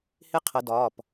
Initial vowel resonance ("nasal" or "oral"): oral